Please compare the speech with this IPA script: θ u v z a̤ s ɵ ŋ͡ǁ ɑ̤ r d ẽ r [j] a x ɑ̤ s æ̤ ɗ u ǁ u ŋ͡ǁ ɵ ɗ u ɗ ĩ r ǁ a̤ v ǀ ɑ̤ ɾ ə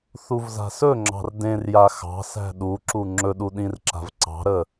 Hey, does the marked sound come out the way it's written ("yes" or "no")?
yes